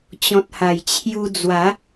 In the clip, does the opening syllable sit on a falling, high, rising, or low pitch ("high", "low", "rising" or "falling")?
low